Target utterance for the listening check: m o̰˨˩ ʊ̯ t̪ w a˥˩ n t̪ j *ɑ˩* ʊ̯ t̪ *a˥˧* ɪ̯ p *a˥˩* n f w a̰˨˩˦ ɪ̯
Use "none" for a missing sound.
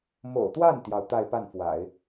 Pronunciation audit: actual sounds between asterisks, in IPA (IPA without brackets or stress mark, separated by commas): ɑ˩, a˥˧, a˥˩